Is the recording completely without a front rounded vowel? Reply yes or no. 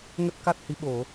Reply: yes